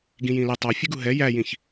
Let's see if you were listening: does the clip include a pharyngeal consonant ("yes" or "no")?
no